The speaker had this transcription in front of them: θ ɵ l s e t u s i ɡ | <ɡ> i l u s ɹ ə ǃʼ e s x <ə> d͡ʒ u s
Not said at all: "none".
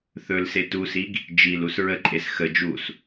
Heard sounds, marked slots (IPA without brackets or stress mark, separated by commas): d͡ʒ, ə